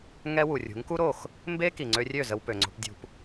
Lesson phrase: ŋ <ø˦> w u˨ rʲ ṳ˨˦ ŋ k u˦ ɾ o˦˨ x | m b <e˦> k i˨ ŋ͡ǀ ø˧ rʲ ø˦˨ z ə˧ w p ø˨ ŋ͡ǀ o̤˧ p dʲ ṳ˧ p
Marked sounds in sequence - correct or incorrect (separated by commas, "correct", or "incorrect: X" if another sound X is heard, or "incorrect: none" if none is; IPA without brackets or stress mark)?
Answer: incorrect: ɛ˦, correct